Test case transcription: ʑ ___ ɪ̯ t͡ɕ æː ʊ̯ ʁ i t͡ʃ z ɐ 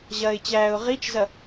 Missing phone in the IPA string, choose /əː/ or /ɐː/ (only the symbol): ɐː